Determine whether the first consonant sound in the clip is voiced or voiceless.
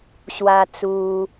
voiceless